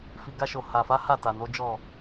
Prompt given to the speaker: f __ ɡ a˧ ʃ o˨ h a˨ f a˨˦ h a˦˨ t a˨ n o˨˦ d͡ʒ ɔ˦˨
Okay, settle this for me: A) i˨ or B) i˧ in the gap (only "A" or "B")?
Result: A